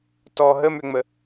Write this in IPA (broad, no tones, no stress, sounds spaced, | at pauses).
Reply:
t ɔ ɦ ə m ʏ ŋ͡m ə